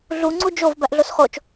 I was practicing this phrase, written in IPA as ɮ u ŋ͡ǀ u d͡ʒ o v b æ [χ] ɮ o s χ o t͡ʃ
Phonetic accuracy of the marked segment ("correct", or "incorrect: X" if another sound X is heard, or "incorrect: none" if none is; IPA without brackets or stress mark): incorrect: ʔ